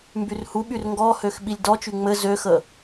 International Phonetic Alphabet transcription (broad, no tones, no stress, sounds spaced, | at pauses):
m b y r h u ɓ y r ŋ ɡ ɔ h ø x ɓ i lʲ d ɔ t͡ʃ y ŋ͡m ɘ z ø x ə